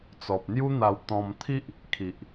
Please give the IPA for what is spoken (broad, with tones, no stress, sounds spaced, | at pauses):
t͡s ɔ˨ p̚ n̪ j u˦ n̪ a˧ w t̪ ɔ̃˧ m t̪ʰ i˦ ʔ | kʰ i˨ ʔ